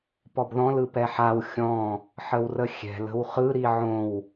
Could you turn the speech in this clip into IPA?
pɔbðɔ̃l ɯpɛħaw xʲɔ̃ | ħəwrəxʲɛ̤l ə̤wχɯ ɾiʕõw

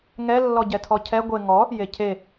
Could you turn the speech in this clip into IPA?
ŋɛlːɔ ɟɛtʰɔcʰɛ ɡʷe ŋɔ | jecʰe

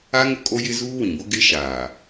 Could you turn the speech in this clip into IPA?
a˦ ŋʊ˦kʼo˦jɪ˦ zuː˦wĩ˨bʊ˦ ɡɪ˦ʃaː˨

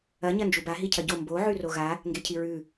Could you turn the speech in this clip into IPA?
ɐ ɲɐnd͡ʒuba ɦicʰɐɟo mbo ʕʉroɣa | ŋɡecʰiɹʉ

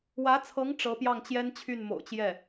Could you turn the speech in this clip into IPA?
wä˧˥t͡sʰɤ˧˥ŋ ʈ͡ʂɤ˧˥pjɑ˥˩ŋt͡ɕjɛ˥n t͡ɕʰy˥˩nmo̰˨˩ʊ̯t͡ɕjɛ˥˩

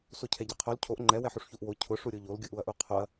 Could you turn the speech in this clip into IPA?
socʰɛɟɛqʰol cʰoʔ ŋ͡ǃɛ wɛħuʂçuʔwo cʰʊ ʂuɾʲoʎol ɡʲuʔuɐ̯ʔuqʰoɐ̯

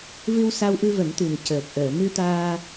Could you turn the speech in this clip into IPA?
vɨ˧wsa˧wʔɨ˧ və˨˩˦mt̪ɨ˨˩ŋcəː˨˩k̚ ʔəː˨˩˨mɨ˧t̪aː˧

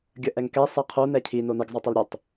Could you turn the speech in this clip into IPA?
ɡʲəʔɛŋkɛ sˤɛqʰo nɛcʰi noniɡ zˤɛtˤɛlɾʲœtˤ

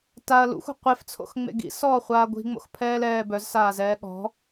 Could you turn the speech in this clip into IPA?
taɐ̯ lṵxʷɛ̤ qʷeft͡sʰo̰xŋ͡mḛ ɡḭsɔːχʷaː ɡʷi̤ŋ͡mo̰xpʰɛːlɛː bœzsaːzɛː ɠɔ̤

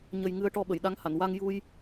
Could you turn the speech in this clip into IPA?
ɲə˨˩j ŋɨ˧ə̯ʈɔ˧ ɓə˨˩˨jɗa˧˥ŋha˨˩˨n wa˧ŋju˧j

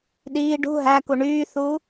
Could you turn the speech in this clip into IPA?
ɗiː ɖṳ ɦæku ɳyːθu

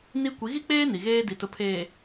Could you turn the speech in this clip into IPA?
ni˦ kʷi˨˦ɣi˦k͡peː˦ ni˨ɣeː˦di˨ tʊ˨pʰeː˨

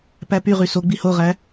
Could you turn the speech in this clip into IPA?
pæpyʁy so ɡ͡bihoʁæ

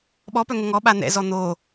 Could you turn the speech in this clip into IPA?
ɓɔpœ ŋəŋɔɓa n̪ɛ̰zɔ n̪o

